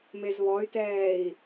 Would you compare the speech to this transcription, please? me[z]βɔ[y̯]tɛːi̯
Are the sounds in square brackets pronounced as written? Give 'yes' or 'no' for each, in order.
yes, yes

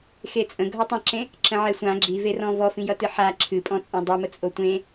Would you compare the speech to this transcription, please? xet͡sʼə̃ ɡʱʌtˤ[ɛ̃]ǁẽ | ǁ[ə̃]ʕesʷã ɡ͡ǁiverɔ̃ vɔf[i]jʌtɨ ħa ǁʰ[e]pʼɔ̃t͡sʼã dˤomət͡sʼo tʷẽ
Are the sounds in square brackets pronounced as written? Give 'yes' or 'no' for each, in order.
no, yes, no, no

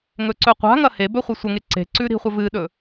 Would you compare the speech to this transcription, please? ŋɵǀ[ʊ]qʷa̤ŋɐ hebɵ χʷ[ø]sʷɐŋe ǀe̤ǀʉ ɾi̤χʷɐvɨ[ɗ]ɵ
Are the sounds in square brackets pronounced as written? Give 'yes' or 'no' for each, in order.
no, no, yes

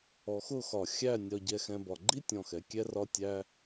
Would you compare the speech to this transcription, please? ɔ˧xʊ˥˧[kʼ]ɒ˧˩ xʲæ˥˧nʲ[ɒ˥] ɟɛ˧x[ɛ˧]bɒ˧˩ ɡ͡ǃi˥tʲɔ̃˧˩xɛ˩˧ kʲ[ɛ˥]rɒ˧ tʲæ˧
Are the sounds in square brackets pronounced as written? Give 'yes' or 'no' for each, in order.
no, no, no, no

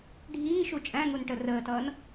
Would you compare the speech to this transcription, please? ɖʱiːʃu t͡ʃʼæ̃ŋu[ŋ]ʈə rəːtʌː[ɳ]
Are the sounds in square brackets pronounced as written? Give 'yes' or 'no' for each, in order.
no, no

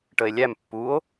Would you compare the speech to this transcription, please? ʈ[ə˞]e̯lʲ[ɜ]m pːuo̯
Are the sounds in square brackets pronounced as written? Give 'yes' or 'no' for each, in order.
no, no

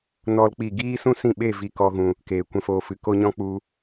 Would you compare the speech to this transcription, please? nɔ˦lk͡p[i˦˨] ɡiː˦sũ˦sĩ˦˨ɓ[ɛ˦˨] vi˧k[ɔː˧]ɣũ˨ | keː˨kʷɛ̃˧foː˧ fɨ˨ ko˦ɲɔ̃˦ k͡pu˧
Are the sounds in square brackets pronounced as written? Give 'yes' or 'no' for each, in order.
yes, no, no

